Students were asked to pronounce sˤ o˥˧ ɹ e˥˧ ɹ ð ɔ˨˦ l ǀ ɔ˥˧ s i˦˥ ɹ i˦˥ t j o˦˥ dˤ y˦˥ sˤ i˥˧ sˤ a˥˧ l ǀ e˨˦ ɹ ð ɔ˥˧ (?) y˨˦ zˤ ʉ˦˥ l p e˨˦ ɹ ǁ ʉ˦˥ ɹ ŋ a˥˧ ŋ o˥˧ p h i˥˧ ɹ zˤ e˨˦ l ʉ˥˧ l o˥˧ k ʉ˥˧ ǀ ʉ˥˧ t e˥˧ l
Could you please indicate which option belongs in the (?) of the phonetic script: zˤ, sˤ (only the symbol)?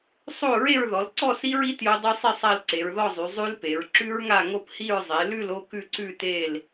zˤ